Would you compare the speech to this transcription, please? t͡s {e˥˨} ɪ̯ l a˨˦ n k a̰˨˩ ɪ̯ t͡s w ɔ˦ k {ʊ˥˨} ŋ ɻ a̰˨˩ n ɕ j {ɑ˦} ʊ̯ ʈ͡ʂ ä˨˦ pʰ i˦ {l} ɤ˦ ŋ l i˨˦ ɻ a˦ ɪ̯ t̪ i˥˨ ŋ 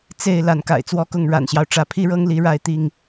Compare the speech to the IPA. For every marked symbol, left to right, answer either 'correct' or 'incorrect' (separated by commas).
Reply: correct, correct, correct, incorrect